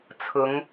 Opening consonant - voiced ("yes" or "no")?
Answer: no